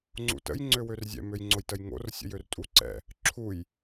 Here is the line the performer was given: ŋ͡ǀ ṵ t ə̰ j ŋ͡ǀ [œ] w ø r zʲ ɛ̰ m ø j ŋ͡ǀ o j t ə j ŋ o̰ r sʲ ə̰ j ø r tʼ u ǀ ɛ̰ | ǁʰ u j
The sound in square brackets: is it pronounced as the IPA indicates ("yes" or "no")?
no